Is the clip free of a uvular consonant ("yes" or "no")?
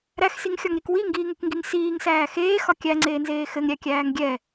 yes